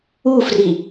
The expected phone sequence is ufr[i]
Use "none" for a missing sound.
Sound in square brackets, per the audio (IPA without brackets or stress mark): i